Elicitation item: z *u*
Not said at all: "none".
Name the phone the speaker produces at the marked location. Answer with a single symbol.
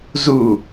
u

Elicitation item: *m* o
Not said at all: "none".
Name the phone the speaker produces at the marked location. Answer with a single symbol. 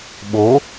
ɓ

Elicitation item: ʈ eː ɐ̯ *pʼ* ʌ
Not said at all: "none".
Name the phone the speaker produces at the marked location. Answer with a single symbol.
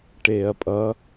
pʼ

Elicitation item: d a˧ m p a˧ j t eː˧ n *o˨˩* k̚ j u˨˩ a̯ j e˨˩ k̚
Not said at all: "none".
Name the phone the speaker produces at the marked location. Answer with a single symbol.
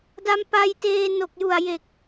o˨˩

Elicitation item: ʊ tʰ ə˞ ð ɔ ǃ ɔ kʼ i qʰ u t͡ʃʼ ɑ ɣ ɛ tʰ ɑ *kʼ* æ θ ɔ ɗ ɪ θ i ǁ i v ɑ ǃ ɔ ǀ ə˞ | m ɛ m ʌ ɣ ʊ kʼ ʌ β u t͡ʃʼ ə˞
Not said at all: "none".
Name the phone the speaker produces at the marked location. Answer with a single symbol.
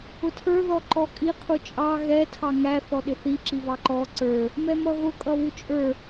ŋ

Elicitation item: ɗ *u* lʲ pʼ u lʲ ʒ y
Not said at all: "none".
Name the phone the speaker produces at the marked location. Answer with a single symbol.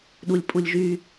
u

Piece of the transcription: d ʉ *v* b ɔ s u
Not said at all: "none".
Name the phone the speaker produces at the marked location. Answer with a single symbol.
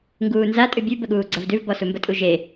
v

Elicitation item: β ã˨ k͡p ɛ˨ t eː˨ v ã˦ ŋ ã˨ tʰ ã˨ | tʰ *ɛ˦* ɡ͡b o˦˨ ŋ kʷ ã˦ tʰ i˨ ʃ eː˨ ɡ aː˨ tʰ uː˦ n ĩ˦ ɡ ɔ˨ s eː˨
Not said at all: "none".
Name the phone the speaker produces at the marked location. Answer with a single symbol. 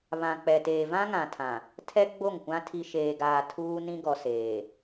ɛ˦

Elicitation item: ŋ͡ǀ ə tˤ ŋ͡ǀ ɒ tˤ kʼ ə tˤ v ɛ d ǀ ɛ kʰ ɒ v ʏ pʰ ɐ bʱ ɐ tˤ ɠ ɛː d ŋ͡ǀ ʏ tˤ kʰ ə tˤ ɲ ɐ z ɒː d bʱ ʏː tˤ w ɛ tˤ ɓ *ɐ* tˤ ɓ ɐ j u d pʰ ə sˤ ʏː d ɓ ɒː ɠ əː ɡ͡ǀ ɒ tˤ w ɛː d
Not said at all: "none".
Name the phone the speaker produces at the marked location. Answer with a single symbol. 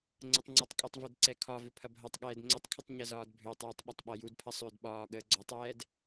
ɐ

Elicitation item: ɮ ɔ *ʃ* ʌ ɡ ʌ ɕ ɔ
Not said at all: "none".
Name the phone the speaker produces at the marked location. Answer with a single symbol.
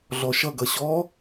ʃ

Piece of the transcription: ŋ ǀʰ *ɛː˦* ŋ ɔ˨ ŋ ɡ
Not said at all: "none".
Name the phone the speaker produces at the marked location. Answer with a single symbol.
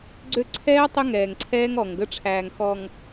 ɛː˦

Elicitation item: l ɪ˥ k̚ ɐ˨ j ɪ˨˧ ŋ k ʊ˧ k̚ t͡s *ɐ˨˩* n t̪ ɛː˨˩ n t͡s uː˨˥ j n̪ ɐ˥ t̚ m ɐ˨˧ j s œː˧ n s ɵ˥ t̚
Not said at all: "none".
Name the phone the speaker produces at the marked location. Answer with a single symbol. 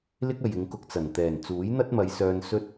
ɐ˨˩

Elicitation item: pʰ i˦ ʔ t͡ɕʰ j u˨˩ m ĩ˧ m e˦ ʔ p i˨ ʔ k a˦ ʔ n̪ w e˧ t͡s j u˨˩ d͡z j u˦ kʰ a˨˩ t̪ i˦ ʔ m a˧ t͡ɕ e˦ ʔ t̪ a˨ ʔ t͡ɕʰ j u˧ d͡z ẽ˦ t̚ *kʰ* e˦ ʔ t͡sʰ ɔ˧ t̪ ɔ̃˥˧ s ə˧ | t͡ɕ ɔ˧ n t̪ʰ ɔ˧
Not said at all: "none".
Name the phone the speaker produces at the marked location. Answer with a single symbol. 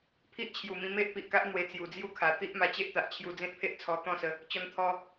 pʰ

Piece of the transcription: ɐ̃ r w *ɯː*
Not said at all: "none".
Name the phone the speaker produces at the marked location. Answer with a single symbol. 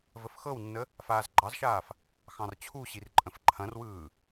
ɯː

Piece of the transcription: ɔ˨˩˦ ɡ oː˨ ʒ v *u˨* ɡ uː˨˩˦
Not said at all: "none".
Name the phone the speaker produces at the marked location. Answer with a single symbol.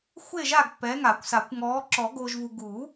u˨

